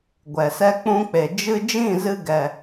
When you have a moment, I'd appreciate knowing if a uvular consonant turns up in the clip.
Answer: no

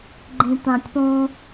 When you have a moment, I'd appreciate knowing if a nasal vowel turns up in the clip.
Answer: yes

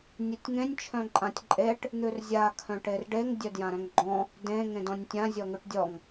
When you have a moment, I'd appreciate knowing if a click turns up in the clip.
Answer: yes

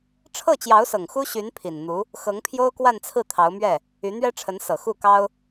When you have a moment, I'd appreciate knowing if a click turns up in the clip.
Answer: no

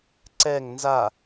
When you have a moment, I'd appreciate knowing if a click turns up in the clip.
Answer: yes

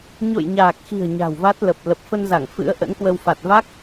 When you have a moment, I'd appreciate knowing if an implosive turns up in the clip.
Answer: no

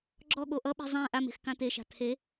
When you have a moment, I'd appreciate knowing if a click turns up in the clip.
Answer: yes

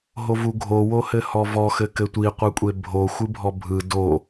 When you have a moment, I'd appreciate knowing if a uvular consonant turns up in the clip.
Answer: yes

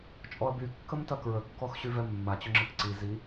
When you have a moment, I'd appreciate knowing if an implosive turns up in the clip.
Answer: no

